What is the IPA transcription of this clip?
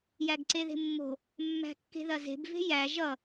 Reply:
j æ ɡ ǀ e ð e̤ mː o̤ | mː æ̤ kː e̤ ð ɐ z e̤ b v e̤ j æ ʒ ʌ

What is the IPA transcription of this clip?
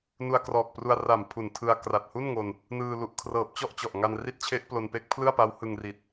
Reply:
n u˧ a̯ k r ɔː˨˩ k̚ p r u˧ a̯ r a˨˩ m pʰ u˨˩ n tʰ ɯ˧ a̯ k r a˨˩ t̚ h u˥˩ n ŋ o˧ n | n ɯː˧ l u˨˩ ʔ kʰ r ɤː˨˩ p̚ t͡ɕ ɔ˥˩ ʔ t͡ɕ ɔ˨˩ ʔ ŋ a˧ n r i˦˥ t̚ t͡ɕʰ e˦˥ ʔ p l o˧ n p e˦˥ k̚ pʰ l ɯ˥˩ a̯ p a˦˥ w h ɯ˧ ŋ r i˨˩ t̚

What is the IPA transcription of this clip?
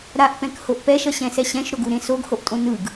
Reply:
ɾ a ʔ p ɛ̃ k h o ʔ p ɛ ʃ ʌ ɕ ɛ̃ s ɛ ɕ ɛ̃ ʃ ɾ o ɡ u ɾ ẽ s o ɡ h o ʔ tʼ õ n ɯ ɡ

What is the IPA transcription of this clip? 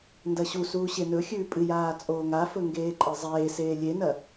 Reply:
n d ɐ ɕ u s uː ɕ e n ɵ xʲ ʉː pʼ ɨ j aː t͡sʼ oː ŋ a f ɵ ŋ ɡ eː ǃʼ ɨ zˤ eː s eː lʲ e n ɐ

